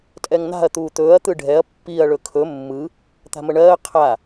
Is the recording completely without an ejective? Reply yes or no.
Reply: no